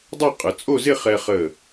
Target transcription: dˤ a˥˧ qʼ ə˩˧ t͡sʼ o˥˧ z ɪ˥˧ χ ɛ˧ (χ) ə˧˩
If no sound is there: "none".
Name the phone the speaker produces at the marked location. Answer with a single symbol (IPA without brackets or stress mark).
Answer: χ